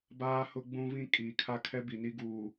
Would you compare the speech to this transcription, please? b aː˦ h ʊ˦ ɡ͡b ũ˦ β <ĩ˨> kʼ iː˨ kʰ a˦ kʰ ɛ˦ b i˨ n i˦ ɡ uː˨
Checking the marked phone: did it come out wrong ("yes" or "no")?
yes